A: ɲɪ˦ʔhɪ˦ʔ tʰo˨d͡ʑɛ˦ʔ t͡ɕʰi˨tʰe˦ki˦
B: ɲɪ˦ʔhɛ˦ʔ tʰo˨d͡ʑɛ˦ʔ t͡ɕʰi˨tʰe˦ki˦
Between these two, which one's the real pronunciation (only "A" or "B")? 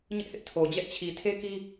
A